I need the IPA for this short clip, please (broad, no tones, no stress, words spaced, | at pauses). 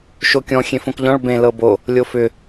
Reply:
ʃokʲɔ̃ xʲẽfõkʎɔ̃ɭ bẽ lɤbo | lʲofʏ